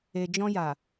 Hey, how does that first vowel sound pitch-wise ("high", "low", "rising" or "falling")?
low